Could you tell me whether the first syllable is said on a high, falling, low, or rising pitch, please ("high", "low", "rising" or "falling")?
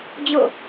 falling